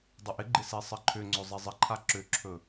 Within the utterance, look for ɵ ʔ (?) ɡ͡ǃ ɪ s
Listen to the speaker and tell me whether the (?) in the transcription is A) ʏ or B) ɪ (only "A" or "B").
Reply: B